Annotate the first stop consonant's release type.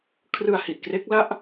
aspirated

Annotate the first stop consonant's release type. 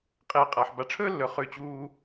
ejective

